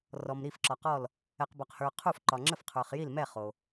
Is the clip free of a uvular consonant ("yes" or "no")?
no